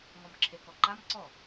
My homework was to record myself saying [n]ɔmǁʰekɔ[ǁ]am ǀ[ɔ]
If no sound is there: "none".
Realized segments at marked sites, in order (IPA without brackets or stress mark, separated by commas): ŋ, ǃ, ɔ